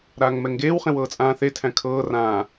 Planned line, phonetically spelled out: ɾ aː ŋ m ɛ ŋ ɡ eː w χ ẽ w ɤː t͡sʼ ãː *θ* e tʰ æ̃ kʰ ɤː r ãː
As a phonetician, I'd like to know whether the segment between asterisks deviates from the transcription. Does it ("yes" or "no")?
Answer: no